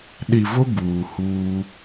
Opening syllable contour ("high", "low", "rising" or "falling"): low